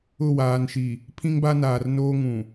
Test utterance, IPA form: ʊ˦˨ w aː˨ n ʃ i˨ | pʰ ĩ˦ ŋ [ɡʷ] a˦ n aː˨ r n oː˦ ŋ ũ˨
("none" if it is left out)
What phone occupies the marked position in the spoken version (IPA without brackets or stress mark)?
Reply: b